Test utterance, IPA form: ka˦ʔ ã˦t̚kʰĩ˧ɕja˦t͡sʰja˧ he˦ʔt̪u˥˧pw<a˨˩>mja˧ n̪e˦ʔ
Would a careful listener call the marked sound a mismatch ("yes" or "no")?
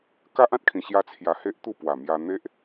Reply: no